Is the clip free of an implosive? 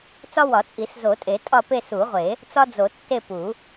yes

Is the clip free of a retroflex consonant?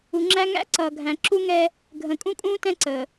yes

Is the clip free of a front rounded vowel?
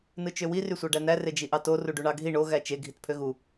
no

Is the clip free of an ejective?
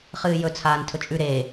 no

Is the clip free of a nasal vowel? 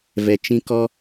no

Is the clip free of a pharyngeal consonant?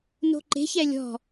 yes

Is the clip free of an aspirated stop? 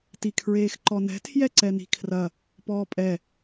no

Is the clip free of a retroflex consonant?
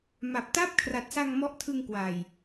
yes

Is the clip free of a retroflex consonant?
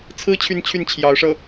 no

